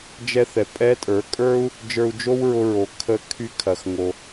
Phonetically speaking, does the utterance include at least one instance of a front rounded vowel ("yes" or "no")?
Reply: yes